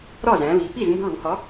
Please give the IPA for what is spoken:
ɾ ɒ˥˩ z æ̃˩˧ β i˩˧ p i˥˩ z m ṳ˧ ɭ u˩˧ h ɒ˨˥

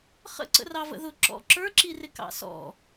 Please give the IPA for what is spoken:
χ ə̰ ǀ ə̰ r ɑ v ə̰ ð ʊ ǁ ɔ̰ ǁ ə˞ ǁ i r ɪ k ɑ̰ s ɔ̰

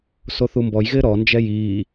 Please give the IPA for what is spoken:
s o θ u m b ɔ j ɣ ɪː ɾ ɔ n d͡ʒ ɛ j iː

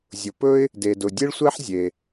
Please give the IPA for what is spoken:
zʲ ʊ˩ p ɵ˥ ɪ̯ | d e˩ d ʊ˩ dʲ e˥ ɭ sʷ ɛ˥ ħ zʲ e˩

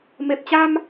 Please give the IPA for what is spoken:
m e˨˩ p̚ t͡ɕ a˧ m

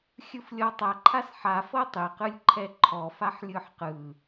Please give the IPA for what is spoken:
xʲ ɯ f lʲ ɔ tˤ a ǃʰ a s ħ a f ɤ tˤ e q ɯ lʲ ǃʰ ɛ ǃʰ ɔ f a ħ lʲ ɯ ħ q ɯ

